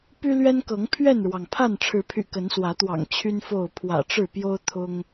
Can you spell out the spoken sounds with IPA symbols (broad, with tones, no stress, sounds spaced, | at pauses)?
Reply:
p y˦ l ɥ ɛ˦ n k ɤ˨˦ ŋ pʰ ɥ ɛ˥˨ n ɻ w ɑ˩ ŋ pʰ a˥˨ n ʈ͡ʂʰ ɻ̩˨˦ pʰ y̰˨˩ k ə˨˦ n s w ä˨˦ t̪ w ɑ̰˨˩ ŋ t͡ɕʰ y˦ n f o˥˨ ʊ̯ pʰ w ä̰˨˩ ʈ͡ʂ ɻ̩˥˨ p j o˦ ʊ̯ t̪ʰ ʊ˦ ŋ